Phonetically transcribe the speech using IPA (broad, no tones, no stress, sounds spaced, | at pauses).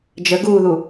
d͡ʒ ə ɡ uː ð u